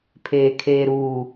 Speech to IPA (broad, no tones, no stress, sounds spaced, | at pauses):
pʰ eː kʰ eː ɾ uː